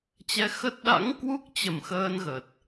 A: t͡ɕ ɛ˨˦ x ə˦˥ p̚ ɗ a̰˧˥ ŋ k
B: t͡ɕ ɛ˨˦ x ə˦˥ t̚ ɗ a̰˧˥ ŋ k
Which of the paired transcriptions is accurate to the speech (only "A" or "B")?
B